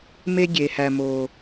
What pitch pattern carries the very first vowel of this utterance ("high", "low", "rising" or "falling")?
high